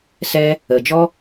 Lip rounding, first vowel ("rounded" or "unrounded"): unrounded